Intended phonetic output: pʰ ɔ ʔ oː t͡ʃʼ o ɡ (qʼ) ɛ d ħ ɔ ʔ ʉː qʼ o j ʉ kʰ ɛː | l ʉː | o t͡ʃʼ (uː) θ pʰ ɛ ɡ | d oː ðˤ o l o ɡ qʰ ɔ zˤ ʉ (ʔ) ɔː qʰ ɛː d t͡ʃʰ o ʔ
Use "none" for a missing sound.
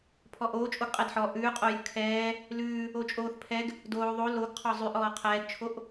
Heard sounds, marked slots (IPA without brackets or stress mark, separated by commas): qʼ, oː, ʔ